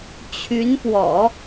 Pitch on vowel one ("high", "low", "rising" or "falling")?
rising